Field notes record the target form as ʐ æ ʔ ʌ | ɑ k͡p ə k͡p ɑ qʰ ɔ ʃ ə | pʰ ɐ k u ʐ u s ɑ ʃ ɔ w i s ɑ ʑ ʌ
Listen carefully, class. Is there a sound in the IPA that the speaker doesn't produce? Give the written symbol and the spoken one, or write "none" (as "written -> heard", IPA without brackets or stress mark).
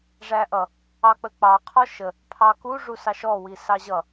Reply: ɐ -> ɑ